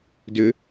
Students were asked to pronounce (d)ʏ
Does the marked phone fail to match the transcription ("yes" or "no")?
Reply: no